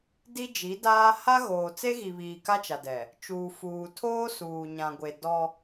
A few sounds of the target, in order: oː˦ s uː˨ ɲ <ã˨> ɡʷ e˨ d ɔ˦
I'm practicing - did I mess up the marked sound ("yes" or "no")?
no